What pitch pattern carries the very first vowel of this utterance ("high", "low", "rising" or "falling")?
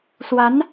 rising